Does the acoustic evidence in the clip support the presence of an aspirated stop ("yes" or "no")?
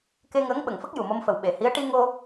no